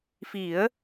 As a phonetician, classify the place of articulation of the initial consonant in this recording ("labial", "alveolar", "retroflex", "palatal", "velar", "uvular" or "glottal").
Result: labial